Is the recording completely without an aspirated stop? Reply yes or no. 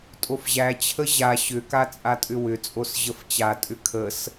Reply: no